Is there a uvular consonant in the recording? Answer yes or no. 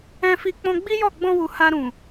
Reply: no